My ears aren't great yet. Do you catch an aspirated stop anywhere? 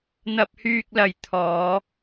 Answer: yes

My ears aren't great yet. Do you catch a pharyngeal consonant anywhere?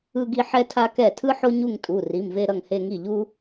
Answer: yes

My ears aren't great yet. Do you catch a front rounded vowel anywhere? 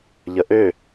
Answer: yes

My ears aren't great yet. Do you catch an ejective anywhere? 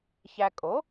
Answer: yes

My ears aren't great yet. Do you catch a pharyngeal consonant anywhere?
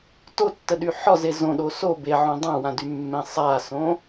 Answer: yes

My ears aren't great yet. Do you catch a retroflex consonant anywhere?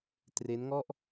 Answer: no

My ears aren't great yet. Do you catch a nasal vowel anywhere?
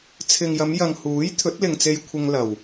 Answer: no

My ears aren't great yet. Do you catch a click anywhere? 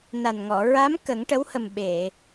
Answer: no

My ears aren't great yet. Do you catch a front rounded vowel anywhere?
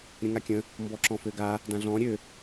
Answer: yes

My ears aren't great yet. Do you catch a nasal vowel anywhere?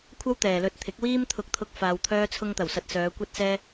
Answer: no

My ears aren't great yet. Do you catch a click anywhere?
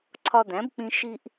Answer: yes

